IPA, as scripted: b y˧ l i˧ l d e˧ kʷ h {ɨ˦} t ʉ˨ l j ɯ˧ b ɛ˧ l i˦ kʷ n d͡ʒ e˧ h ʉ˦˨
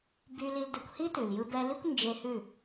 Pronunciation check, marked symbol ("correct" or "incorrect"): incorrect